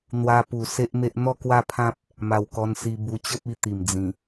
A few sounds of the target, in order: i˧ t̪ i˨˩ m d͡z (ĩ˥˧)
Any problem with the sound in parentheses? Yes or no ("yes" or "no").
yes